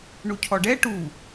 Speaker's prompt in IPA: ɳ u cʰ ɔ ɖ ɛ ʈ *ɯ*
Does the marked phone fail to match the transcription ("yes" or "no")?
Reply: yes